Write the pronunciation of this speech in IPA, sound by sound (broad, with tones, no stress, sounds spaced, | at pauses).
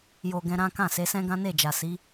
j o˨ ɡ ɛ̃˧ ɾ ã˦ k ã˦˨ s e˨˦ s ɛ̃˦ ɡ ã˦ n e˦˨ d͡ʒ a˨ s i˨˦